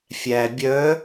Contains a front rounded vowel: yes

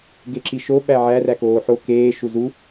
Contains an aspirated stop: no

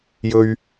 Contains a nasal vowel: no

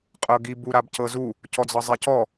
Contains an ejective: yes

